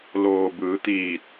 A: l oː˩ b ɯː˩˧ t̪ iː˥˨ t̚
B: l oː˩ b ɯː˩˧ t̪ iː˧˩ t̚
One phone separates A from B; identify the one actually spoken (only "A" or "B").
B